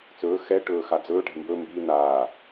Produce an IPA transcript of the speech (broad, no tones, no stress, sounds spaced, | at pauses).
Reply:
t͡s ɵː x ɛ ʈ ɵː x a d͡z ɵː ʈ ɛ̤ m b ɵ m b i n̪ aː